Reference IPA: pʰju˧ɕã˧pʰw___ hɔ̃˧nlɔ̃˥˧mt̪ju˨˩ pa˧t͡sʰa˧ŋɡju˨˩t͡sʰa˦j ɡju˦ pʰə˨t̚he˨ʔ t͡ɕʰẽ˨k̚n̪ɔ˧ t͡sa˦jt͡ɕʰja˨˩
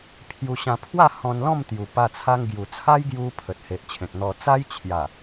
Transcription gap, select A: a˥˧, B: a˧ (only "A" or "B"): A